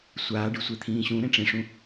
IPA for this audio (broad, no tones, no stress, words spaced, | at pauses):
sʷaː ɖɨsʷet̪ʰĩːɕũ ɾẽʈ͡ʂẽʂũ